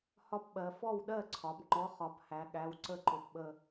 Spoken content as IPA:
hɒ˦˥pɓɜ˩˧ fɔ˥˩wɗɜ˥˩ǀʰɒ˩˧bŋ͡ǃɔ˨˥ χɒ˩˧phæ˩˧ɠæ˩˧˩w ǀə˥˩ǃʊ˩˧pɓə˧˩

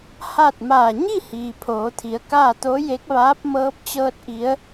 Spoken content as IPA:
ha˥˨t̚ maː˧˩ ɲi˥˨ hiː˩pʰoː˩˧t̪ʰi˩˧ə̯kaː˥˨ t̪o˧˥je˧˥k̚ʋaː˧˥p̚ mɤː˧˥p̚t͡ɕɤː˧t̚ʔi˩˧ə̯

